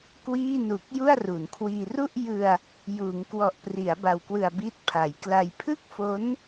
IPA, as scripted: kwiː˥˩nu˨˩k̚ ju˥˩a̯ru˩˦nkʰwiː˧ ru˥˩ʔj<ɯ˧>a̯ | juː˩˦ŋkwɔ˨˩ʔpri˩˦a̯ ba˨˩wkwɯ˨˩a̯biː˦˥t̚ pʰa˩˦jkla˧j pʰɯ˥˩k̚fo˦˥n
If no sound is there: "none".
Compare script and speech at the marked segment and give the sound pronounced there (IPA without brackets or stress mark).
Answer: ɯ˧